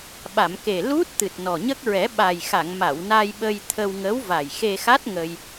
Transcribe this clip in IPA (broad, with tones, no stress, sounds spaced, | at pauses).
ɓ a˨˩˨ m k e˨˩ l u˦˥ t̚ t̪ ɨ˨˩ t̚ n ɔ˨˩ ɲ ə˦˥ k̚ ɹ ɛ˨˩˦ ɓ a˨˩ j x a˨˩˨ ŋ m a˨˩˨ w n a˧ j ɓ ə˧ j t̪ʰ ə˧ w ŋ ə˧˥ w v a˨˩ j x e˧ x a˦˥ t̚ ŋ ə˧ j